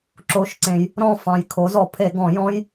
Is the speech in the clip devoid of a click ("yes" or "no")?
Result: no